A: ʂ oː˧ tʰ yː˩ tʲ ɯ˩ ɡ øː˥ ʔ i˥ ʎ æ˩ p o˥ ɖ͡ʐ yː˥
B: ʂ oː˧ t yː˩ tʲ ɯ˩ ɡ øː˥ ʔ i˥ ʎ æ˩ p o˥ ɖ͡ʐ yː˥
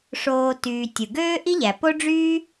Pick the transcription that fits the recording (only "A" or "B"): B